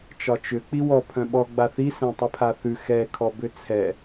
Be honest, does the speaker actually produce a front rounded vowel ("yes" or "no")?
yes